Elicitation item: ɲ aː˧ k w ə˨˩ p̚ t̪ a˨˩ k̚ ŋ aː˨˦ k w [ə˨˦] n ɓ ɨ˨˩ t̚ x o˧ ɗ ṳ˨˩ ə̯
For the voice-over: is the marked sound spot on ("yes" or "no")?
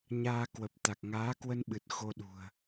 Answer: no